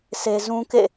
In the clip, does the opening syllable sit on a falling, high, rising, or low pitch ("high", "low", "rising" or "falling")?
high